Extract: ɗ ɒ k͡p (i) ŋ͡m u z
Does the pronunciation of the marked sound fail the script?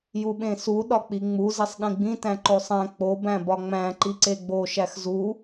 no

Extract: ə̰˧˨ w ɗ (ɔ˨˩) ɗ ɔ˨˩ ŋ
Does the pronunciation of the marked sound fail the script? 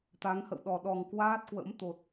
no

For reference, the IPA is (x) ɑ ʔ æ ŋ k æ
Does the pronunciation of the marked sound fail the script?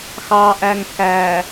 no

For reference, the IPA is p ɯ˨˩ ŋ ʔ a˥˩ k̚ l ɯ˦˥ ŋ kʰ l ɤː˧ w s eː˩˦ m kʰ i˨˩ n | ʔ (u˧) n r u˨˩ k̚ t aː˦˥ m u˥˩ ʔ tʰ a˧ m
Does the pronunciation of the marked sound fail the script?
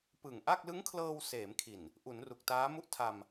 yes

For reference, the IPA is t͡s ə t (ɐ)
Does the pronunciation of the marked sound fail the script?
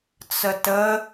yes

